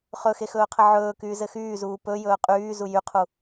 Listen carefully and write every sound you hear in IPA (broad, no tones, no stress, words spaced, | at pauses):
χɵxexɵːqʰɘ ʕɵːkyːzɘ xyːzuː pɵjɵː qʼyːzu jyqʰu